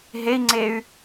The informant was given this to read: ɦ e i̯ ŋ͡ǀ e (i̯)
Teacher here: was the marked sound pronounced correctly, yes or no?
no